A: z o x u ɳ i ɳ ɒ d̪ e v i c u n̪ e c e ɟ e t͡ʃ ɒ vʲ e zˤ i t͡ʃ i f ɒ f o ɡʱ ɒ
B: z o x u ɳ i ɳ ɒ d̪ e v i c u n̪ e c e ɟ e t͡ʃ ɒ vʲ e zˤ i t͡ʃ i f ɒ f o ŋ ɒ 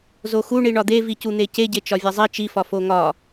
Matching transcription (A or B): B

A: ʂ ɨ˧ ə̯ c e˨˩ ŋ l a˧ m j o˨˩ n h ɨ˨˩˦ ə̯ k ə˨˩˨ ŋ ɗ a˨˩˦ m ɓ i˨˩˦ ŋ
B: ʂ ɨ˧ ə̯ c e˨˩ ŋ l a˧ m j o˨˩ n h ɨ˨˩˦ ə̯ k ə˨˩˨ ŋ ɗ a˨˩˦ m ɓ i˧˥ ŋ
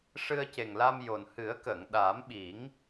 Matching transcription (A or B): A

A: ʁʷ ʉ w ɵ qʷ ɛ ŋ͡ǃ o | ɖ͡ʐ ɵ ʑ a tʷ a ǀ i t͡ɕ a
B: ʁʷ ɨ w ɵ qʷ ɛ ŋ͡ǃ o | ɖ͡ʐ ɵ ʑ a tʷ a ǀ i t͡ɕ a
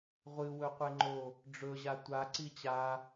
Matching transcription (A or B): B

